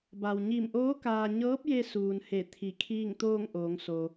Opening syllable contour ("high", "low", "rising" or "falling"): low